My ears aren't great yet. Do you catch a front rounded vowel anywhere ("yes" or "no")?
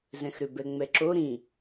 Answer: yes